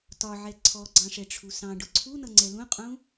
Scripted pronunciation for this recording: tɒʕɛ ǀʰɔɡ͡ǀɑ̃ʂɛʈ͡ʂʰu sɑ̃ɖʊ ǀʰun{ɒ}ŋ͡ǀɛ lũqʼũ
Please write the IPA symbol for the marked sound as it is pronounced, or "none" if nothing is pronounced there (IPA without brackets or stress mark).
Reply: ʌ